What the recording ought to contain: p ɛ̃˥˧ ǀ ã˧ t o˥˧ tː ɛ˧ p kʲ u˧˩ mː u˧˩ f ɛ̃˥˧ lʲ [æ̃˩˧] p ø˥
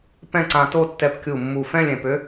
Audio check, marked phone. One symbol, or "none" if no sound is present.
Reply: ɛ̃˩˧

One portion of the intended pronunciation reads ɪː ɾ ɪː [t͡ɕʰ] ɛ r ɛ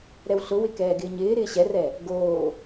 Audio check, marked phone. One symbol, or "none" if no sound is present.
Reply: ɕ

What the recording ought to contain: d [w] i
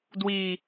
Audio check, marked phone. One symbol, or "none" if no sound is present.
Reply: w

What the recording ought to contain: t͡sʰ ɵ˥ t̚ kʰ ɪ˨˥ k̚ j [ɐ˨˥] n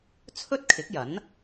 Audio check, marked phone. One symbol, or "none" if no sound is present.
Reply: ɐ˨˥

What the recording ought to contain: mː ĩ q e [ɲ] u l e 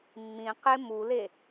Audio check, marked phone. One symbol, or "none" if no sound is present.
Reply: m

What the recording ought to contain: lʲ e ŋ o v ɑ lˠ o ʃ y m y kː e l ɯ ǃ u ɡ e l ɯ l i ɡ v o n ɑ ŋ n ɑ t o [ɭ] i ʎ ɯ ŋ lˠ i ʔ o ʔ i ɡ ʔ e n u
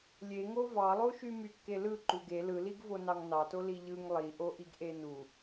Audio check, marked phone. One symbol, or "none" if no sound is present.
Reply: l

